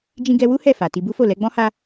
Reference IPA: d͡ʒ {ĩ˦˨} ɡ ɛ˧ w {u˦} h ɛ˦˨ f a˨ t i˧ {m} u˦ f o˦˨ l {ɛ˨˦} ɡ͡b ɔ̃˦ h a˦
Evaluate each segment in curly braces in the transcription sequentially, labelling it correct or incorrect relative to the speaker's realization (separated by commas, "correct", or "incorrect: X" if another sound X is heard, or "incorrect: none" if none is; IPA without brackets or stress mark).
incorrect: ĩ˧, correct, incorrect: b, correct